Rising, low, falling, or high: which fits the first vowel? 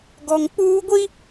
low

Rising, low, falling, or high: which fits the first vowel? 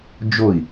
falling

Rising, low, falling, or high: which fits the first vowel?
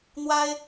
high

